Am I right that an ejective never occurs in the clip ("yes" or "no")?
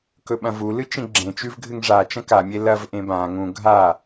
yes